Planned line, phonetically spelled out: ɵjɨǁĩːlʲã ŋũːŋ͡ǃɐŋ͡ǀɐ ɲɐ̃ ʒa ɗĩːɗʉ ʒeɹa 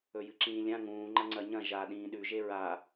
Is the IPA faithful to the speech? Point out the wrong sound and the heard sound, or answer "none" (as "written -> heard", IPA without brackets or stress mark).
none